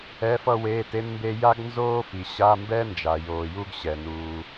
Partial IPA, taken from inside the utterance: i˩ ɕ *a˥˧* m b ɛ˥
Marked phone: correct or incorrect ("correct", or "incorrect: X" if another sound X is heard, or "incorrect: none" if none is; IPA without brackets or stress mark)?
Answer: incorrect: a˧˥˧